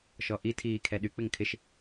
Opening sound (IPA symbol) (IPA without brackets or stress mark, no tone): ʃ